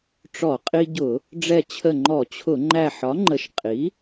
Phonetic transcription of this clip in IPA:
ʈ͡ʂ ɔ˧˩˧ qʼ i˧ ɟ ʊ˧˩˧ | ɖ͡ʐ ɛ˧˩ t͡ɕʰ ə˧˩ ŋ͡ǃ ɔ˧˩˧ t͡ɕʰ ʊ˧˩˧ ŋ͡ǃ æ˧˩ ħ ɒ˩˥ ŋ͡ǃ ə˩˥ ʃ qʼ i˩˥

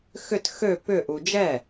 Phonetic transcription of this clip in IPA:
x ʏ t x ø p ʏ ʔ u d͡ʒ ɛ

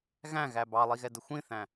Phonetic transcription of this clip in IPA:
ɣ æ̃ ɣ æ b ɑ lˠ i ɣ ɛ d ə xʷ ĩ θ æ̃

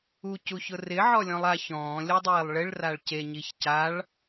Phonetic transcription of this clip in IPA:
u c u ç ʊ r ɪ ʕ ɔ lʲ ɔ̃ lˠ a ç ɔ̃ː lʲ ɔ dˤ iː lˠ ɭ ɪ ɭ r a ɭ c e ɲ i ç c a ɭ

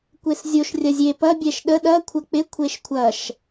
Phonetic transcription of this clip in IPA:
kʷ e s zʲ o ʃ rʲ ɐ zʲ e p ɐ bʲ ɛ ʃ ɗ ə ɗ ɐ kʷʰ ɐ k͡p ɪ kʷʰ e ʃ kʷʰ ɐ ʃ

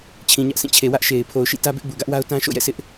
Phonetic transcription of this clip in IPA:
t͡ɕʰ ĩ˨ ɲ ä˦ ʔ s ĩ˦˨ t͡ɕʰ e˨ w ä˦ ʔ ʃ e˨ ɪ̯ pʰ o˨ ʊ̯ ʃ ḭ˦˨ t ä˦ b ɪ˦ ʔ b u˨ ɡ ä˦ ʔ w a˦ ʊ̯ t ã˦ ʃ o̰˦˨ j ɛ̰˦˨ sʰ ɪ˦ ʔ

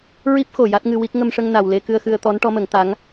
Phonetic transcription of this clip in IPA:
ɹ i˦˥ p̚ x o˨˩ j a˦˥ t̚ ŋ ɨ˧ w i˦˥ k̚ ŋ ə˧ m ʂ ə˧ ŋ n a˨˩ w l e˧ k ɨ˧ ə̯ x ɨ˧ ə̯ t̪ ɔ˧˥ n ʈ ɔ˧˥ m ə˨˩˦ ŋ t̪ a˧˥ ŋ

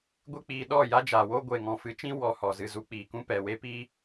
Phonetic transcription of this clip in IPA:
ɡʷ e˦ k͡p iː˧ ɗ ɔ˦˨ j a˦ d͡ʒ aː˨ w o˦ ɡʷ e˨ ŋ ɔ̃˨ f ɨ˨˦ t͡ʃ ĩ˦ w ɔ˧ h ɔ˨ z ɨ˨ z u˧ k͡p iː˨ k ũ˦ p ɛ˨ w e˦ p i˦

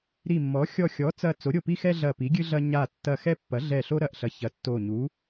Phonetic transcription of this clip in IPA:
ɾ i˧˩ mː ɔ˩˥ xʲ ɔ˧˩ xʲ ɔ˩˥ t͡s ɐ˧˩ t͡s o˩˥ ɾʲ o˧˩ p i˦ x ɛ˦ ɮ ɐ˧˩ p i˩˥ ɡʲ ɨ˦ ɮ ɐ˦ ɲ a˧˩ tː ɐ˧˩ x ɛ˦ pː ɐ˩˥ ɮ ɛ˧˩ ɬ o˦ ɾ ɐ˧˩ ʔ ɬ ɐ˩˥ ç ɐ˩˥ tː o˧˩ ɲ u˩˥

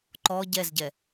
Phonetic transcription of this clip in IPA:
ǃ ɔ ɟ ɛ z ɟ ɛ

